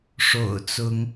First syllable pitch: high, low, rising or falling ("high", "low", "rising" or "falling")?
low